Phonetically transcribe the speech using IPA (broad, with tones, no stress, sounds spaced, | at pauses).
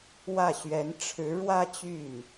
w ä˥˩ ɕ ɥ ɛ˧˥ n ʈ͡ʂʰ ɻ̩˧˥ ɻ w ä˥˧ t͡ɕ y˥˩ n